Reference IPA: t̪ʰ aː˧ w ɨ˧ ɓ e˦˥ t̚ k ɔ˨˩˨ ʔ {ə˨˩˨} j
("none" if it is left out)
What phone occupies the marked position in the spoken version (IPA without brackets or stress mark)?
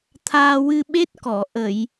ə˨˩˨